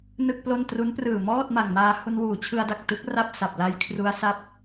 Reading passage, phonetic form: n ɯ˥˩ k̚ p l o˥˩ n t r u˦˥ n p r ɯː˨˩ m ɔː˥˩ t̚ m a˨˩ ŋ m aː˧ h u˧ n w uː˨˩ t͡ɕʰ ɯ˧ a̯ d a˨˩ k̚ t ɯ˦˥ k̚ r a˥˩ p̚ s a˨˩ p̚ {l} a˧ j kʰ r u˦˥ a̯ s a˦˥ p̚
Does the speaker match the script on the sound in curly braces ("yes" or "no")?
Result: yes